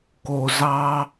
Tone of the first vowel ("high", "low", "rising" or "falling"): low